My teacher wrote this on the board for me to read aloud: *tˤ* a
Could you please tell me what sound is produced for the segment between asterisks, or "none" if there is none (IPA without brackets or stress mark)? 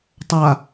tˤ